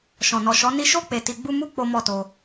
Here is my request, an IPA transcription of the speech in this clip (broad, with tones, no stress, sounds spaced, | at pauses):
ʃ ɔ̃˨ n ɔ˨ ʃ ɔ˨˦ n i˧ ʃ o˦ k͡p e˧ t i˧ ɡ͡b u˦ m u˦ k͡p o˦ m ɔ˦ t o˧